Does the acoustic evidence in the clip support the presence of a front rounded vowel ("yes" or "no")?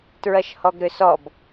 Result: yes